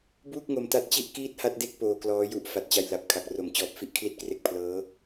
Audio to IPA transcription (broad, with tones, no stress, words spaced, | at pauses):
buː˥˩k̚ŋo˧mta˦˥t̚t͡ɕi˥˩ʔ kiː˥˩t̚ha˥˩t̚de˥˩k̚ poː˧klɔː˦˥ju˦˥ʔ fa˨˩t̚t͡ɕa˧jla˨˩p̚ kʰa˨˩k̚ ro˨˩m t͡ɕɔː˨˩p̚ fi˦˥ʔkʰli˥˩t̚kre˦˥k̚ pʰlɤː˦˥